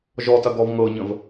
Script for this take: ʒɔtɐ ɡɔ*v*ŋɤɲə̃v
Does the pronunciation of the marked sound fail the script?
no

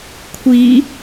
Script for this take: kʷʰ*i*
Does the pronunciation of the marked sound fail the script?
no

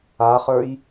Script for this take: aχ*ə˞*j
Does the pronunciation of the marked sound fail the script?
no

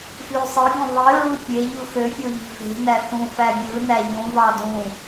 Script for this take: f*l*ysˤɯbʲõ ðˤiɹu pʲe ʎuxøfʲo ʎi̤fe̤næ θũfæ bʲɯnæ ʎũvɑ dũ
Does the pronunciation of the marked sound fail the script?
no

